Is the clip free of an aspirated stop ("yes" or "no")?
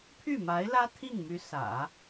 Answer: no